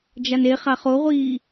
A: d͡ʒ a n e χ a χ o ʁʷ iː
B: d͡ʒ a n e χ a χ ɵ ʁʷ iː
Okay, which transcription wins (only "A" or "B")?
A